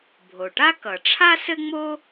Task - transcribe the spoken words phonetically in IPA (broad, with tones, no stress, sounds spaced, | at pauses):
bʱ o˩ ʈ a˥ k ʌ˩ ʈ͡ʂʰ a˥ s ɘ˥ ŋ͡m o˥